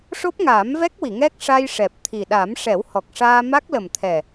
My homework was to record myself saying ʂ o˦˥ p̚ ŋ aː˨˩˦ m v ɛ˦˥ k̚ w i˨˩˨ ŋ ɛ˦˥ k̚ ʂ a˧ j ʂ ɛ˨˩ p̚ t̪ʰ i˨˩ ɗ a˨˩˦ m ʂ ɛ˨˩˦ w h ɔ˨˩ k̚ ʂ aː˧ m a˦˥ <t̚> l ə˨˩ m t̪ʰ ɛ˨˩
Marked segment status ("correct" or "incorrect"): incorrect